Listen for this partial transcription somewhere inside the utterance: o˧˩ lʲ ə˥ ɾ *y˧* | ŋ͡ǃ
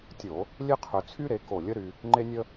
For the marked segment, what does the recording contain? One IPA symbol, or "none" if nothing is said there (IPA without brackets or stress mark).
y˧